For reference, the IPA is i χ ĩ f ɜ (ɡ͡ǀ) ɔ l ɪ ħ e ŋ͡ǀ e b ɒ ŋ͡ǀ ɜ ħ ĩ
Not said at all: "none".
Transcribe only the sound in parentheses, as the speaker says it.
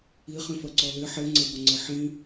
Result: ǀ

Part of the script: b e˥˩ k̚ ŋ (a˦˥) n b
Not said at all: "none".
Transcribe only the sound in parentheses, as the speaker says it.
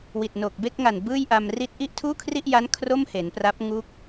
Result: a˨˩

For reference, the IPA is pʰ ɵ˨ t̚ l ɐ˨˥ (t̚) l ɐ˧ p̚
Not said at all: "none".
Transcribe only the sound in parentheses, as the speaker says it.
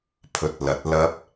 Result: t̚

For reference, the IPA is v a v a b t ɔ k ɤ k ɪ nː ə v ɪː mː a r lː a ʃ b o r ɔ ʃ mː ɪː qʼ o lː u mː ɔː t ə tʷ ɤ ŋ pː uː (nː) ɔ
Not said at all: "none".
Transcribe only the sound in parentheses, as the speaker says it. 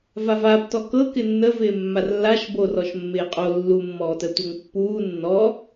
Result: nː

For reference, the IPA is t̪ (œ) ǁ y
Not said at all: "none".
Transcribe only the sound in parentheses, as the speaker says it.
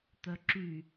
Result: œ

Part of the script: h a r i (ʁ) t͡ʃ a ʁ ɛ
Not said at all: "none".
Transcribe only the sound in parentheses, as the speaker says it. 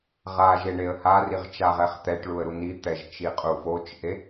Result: ʁ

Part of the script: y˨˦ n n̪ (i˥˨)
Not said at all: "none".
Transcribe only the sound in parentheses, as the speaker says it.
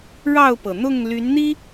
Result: i˦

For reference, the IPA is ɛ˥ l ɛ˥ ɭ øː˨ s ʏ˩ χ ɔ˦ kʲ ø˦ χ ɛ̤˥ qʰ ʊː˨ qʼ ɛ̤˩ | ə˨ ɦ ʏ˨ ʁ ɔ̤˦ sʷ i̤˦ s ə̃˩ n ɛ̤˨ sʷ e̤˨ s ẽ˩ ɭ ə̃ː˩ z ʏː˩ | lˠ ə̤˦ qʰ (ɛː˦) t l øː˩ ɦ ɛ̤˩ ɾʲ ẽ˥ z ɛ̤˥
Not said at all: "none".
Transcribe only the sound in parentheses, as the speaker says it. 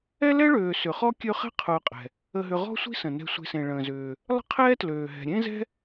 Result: ɛː˦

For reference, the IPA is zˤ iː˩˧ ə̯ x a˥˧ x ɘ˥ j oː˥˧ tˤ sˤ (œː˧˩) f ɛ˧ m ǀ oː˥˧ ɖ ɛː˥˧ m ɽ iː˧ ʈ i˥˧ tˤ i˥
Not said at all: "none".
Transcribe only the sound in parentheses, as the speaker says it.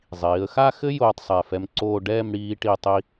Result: ɛː˧˩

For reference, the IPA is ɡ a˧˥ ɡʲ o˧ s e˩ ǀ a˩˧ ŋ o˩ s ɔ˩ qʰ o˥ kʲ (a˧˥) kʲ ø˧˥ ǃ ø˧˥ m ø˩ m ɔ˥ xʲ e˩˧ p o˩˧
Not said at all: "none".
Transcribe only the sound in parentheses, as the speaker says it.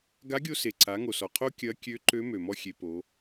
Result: ɐ˧˥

